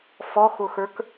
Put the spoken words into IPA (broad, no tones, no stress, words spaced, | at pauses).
fɔxʊxə˞k